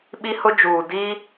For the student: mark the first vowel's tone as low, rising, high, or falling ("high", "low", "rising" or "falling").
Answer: high